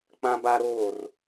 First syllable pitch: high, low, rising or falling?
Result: high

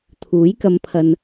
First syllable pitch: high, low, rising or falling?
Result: rising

